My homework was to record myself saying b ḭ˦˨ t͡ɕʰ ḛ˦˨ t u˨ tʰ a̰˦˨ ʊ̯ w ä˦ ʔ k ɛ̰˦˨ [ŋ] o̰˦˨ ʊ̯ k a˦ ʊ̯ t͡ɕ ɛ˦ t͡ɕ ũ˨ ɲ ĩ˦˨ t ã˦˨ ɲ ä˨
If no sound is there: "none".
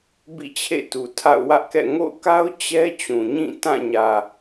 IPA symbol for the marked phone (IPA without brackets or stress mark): ŋ